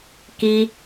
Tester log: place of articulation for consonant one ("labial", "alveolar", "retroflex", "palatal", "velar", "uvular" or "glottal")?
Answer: velar